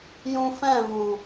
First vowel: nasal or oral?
nasal